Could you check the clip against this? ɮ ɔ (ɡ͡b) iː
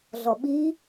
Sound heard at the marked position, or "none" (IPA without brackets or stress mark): ɓ